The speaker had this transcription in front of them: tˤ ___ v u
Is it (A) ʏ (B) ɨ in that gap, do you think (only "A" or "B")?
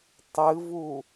B